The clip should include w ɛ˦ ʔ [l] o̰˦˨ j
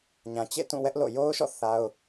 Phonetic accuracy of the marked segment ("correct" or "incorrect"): correct